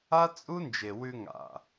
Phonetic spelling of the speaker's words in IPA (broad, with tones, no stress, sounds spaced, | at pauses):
a˦ t͡sʼ u˦ n d͡ʒ e˨ w ʉ˧ ŋ a̰˨